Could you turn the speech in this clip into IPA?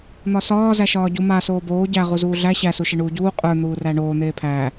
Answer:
n̪ɒsɒː zæʃɒːɟu ma soːboː ɟæ ʁuzuːɮæ ɕæ suʃeɳuːɟuː qʼə˞ n̪uːræɳoː n̪eːpʰæː

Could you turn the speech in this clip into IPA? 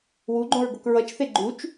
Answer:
wuɡ͡ǃõɹɡok ɹʌt͡ʃθe ɡ͡ǃut͡ʃ

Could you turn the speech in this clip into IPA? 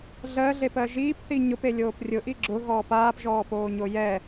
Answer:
ɮɜɮepɜ ʒiːpθi ɲʊpelʲoːp rʲʊʔi ɡ͡ǁʊɣɔː paːpʒɔːpoːɲo jɛ

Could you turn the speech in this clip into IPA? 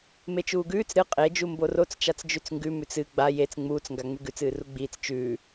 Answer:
met͡ʃuːɡʉːt͡s ɾɨ qʼe d͡ʒumborot͡s t͡ʃat͡sd͡ʒʉt͡sŋɡʉ mʉt͡sɨ ɡ͡ba jet͡s ŋ͡muːt͡s ŋɡaŋ͡mʉɡʉt͡s ɨːruɡ͡biːt͡s t͡ʃʉː

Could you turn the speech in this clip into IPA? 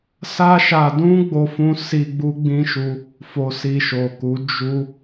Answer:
sa˦ʃa˧ dũ˦ ɡ͡bo˦fũ˦ si˧ ɡ͡bu˦ɡ͡bĩ˦ʃu˧ | fo˧si˧ʃo˨ku˨˦ d͡ʒu˧

